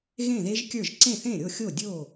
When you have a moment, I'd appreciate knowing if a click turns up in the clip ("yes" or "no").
yes